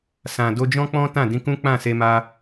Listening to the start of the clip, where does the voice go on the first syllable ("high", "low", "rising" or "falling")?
low